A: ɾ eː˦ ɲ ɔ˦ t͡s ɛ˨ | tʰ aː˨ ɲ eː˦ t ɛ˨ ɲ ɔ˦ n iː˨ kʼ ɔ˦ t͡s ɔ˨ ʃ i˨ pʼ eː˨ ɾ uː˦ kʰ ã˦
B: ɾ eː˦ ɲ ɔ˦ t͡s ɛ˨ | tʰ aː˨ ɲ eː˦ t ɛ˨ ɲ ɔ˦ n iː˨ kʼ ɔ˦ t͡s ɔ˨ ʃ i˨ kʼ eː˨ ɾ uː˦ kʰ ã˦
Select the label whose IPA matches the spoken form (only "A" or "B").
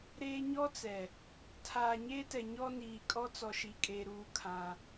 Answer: B